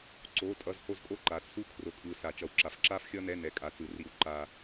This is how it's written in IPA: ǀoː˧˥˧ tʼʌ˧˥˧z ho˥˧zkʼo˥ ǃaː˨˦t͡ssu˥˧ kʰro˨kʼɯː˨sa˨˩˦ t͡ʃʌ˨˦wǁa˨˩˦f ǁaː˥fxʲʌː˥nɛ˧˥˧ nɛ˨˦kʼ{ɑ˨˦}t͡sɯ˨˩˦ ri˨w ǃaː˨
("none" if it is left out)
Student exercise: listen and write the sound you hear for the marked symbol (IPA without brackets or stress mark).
a˨˦